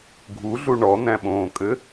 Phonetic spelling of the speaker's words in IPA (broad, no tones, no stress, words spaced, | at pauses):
ɡʱuɮu ɳɔn̪æ̃ɓõːkʼɘ